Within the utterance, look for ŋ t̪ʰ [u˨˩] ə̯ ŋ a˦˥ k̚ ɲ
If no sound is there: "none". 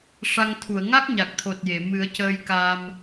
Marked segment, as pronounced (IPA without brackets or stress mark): u˨˩˨